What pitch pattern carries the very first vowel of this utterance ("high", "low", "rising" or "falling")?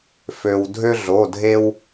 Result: low